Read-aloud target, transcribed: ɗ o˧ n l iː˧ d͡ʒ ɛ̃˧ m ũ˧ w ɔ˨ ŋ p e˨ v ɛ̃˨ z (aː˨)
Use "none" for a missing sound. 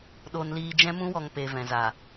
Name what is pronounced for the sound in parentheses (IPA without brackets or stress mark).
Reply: aː˨